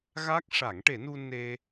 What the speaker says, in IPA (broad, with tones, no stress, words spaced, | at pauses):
ɣa˦˥k̚ ʂa˨˩˦ŋʈe˨˩˦nu˧ ne˧